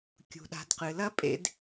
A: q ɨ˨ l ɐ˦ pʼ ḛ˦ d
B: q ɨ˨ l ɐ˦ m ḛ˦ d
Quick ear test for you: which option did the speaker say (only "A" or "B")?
A